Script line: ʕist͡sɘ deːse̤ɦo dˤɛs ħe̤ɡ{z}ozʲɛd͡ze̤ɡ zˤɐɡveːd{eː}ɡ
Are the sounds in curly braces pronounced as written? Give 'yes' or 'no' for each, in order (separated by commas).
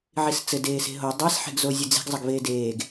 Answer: yes, yes